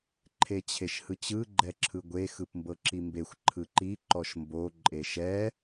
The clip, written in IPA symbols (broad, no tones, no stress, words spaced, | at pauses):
ǃʰet͡ɕʰeʃhɯt͡ɕɯ ɡ͡ǃɛǁʰɯɡʷe xɯpmbɤǁimbexʷ ǃʰɯǃi ǃɔʃmbo ǃʼeʃɛ